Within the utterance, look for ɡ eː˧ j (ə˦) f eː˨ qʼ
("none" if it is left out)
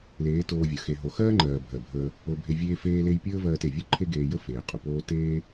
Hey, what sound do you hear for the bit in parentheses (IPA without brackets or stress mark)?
ə˦